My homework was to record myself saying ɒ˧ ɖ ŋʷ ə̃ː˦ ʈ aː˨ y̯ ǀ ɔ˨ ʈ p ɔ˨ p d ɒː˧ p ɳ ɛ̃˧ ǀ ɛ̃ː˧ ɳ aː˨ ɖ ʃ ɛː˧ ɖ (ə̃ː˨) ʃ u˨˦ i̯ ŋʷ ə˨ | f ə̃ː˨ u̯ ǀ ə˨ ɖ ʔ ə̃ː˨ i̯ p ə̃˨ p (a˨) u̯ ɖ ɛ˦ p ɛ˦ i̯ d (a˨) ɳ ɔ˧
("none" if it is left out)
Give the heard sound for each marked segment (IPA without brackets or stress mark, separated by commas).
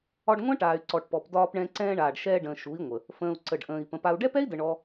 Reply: ə̃ː˨, a˧, ə˨